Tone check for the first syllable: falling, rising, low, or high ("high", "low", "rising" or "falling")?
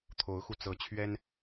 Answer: rising